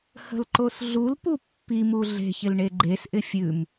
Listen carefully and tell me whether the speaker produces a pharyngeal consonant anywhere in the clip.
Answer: no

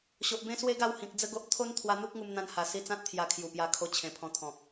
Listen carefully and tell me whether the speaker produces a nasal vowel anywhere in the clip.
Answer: yes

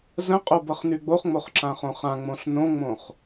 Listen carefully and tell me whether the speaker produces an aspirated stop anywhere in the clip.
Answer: no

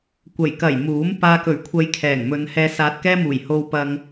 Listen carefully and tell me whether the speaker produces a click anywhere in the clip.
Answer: no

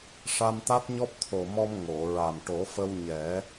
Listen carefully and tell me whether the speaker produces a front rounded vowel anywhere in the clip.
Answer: no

